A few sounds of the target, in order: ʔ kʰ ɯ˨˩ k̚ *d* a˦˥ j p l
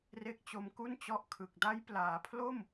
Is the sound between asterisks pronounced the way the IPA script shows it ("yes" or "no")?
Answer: yes